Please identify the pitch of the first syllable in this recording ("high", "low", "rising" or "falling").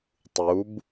rising